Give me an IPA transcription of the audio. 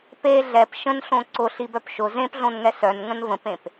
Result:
p e ɮ ɛ p ʃ ə̃ n ɬ õ ǀ ʊ ɬ i b œ p ʃ ʊ z ẽ p ɮ õ n ŋ ɛ s œ n ŋ ə̃ n v ə̃ p ẽ p

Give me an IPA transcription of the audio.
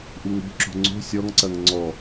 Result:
ʔ u ŋ ɾ o̤ ǁ o̤ ŋ͡ǀ o̤ sʲ ɔ ŋ ǀ ɐ ŋ ŋ͡ǀ ɔ

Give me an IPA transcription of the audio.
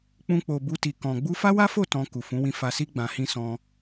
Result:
k͡p ũ˧ k͡p o˨ b u˧ t i˨ k ɔ̃˨ ɡ͡b u˧ f a˦ w a˦ f o˦˨ t ɔ̃˧ k u˨ f ũ˨˦ w ĩ˧ f a˧ s i˦ ɡ͡b ã˧ h ĩ˦ s ɔ̃˧

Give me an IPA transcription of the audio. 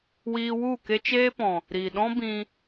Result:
w iː˧ w u˦˨ k e˦ t͡ʃ eː˦ p ɔ̃˨ | ɾ iː˨ ɗ ɔ̃˦ b ĩ˧

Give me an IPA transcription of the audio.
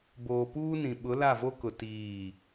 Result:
b oː˨ p uː˦ n ĩ˨ ɓ ʊ˨˦ l a˦˨ v o˦ k ʊ˨ t iː˦˨

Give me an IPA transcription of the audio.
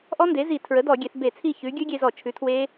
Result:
ʔ ɔ˦˥ n d e˩˥ z i˧˩˧ tʰ ɹ ə˩˥ d ɔ˧˩˧ ɡʲ e˩˧ θ b e˧˩˧ t͡sʰ i˥˩ ç ʉ˩˥ ɡʲ ʉ˦˥ ɡʲ e˧ z ɔ˧˩˧ t͡ʃʰ ʉ˩˥ tʰ w e˦˥

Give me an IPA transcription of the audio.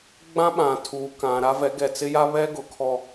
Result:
ɡ͡b ã˦ ɓ ã˨ tʰ uː˨ k ã˨ ɾ a˦ v ɛ˨˦ ɡ ɛ˨ t͡s ɪ˦ j a˦ β ɛ˦ ɡ ʊ˨ kʰ ɔ˦

